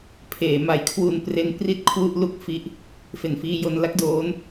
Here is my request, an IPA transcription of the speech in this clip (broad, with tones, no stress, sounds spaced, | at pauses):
pʰ eː˩˦ m a˦˥ j kʰ w u˧ n p r e˦˥ n p r i˥˩ t̚ kʰ w u˥˩ ʔ l u˥˩ k̚ f i˦˥ ʔ | f e˨˩ n f iː˧ j o˧ n l a˦˥ k̚ d oː˦˥ n